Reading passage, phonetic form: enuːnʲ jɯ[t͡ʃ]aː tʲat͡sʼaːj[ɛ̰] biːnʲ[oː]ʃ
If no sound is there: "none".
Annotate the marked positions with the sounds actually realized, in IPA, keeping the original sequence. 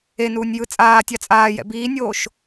t͡sʼ, ɛ̰, oː

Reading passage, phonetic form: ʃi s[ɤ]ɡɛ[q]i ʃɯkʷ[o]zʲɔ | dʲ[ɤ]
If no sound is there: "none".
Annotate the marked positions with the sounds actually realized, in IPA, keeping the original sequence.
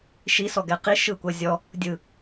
ɔ, q, ɤ, ɯ

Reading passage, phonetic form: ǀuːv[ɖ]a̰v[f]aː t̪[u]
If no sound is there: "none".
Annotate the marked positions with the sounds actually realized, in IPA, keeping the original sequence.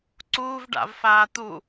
ɖ, f, u

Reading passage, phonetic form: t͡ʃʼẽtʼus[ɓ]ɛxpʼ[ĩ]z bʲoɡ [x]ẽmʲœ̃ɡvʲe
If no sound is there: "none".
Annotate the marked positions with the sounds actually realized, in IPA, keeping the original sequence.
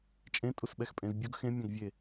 ɓ, ẽ, x

